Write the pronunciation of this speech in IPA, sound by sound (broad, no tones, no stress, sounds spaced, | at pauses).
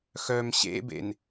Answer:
x œ m ɕ ḛ b ḛ n